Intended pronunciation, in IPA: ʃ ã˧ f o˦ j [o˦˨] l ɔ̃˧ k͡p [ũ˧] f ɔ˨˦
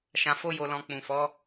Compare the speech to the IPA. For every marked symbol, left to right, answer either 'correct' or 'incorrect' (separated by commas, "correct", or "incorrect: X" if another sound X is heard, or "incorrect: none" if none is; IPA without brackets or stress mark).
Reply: incorrect: o˧, incorrect: ũ˨